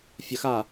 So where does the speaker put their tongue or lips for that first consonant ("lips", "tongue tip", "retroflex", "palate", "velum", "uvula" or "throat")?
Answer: lips